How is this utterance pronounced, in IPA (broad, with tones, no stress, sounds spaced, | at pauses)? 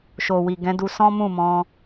ʃ o˨ w i˨ ɡ ɛ̃˨˦ d u˧ s ɔ̃˦ m ũ˦˨ m ɔ̃˧